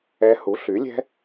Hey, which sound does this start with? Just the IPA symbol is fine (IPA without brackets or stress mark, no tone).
ɛ